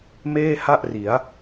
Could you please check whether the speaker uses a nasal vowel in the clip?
no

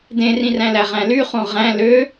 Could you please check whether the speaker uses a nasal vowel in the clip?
yes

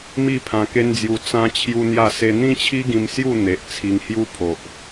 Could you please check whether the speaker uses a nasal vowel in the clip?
yes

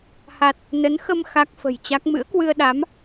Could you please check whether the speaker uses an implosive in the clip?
yes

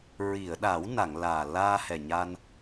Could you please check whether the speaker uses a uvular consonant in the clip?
no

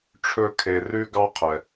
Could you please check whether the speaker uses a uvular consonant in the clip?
yes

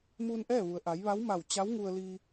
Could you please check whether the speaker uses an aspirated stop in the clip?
no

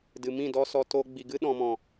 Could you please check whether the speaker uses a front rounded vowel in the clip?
no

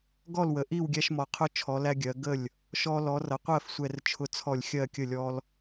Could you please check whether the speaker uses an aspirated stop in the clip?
yes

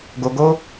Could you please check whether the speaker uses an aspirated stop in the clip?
no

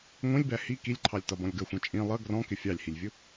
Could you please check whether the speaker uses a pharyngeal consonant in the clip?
no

